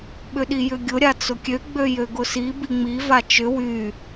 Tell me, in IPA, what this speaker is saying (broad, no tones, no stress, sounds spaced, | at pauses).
ɓ ʏ ɗ i j ʏ ɡʲ ʊ ɾʲ a t͡s ʊ kʲ ø ɡ͡b ø j ø ɡ ʊ s i b i ŋ͡m i v a t͡ʃ ʏ w y